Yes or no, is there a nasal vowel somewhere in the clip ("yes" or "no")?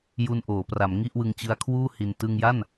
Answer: no